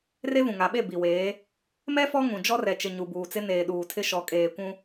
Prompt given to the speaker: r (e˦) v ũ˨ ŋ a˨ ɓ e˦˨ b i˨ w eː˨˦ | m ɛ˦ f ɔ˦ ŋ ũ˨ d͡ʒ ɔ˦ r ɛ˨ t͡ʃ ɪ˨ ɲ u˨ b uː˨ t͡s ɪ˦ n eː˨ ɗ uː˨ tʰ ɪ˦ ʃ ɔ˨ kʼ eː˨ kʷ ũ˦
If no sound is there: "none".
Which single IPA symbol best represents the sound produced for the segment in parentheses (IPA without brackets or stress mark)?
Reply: e˦